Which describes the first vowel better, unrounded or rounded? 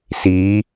unrounded